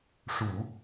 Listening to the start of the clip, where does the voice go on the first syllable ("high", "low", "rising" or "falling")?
low